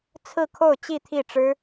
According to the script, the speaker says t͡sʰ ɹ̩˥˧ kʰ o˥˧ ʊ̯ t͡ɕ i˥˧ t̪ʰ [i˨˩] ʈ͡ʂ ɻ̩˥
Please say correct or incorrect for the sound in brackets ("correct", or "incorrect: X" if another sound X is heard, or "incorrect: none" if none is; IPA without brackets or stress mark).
incorrect: i˥˩